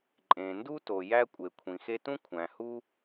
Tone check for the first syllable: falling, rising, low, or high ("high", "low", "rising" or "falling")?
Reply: low